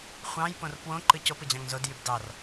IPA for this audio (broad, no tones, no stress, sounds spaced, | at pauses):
χʷ ɑ̃ j p õ r p w õ ǃ ɯ c o p ɯ d͡ʑ ɑ̃ ŋ z o d j y b d ɑ r